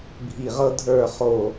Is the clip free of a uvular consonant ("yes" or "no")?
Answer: no